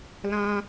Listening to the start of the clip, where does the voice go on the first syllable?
high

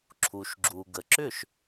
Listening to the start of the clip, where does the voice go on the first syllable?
low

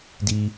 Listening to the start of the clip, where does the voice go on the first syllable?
low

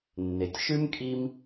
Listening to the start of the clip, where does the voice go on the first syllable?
low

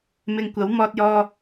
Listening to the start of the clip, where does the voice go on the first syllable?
low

